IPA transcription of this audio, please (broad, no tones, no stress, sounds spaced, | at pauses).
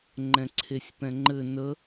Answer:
ŋ͡ǃ ɛ̃ ǀʰ e sʲ p ɛ̃ ŋ͡ǃ ɘ n ə